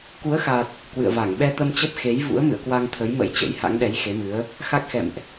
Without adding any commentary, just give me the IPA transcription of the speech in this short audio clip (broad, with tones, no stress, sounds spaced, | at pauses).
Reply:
k u˨˦ ə̯ x a˨˩ t̚ | k w ɨ̰˧˨ ə̯ v a˧˩ ŋ ɓ ɛ˧ t̪ ə˧ m t͡ɕ ə˦˥ p̚ x e˨˦ j v ṵ˧˥ ə̯ m ɨ̰˧˨ ə̯ k w a˧ ŋ t̪ʰ ə˨˦ j m ə̰˧˥ j t͡ɕ ə̰˧˥ j h a̰˧˥ ŋ ɗ ɛ˨˦ j x e˨˦ m ɨ˨˦ ə̯ | x a˦˥ k̚ x ɛ̰˧˨ m ʔ